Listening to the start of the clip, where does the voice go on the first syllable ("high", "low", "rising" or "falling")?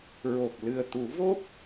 low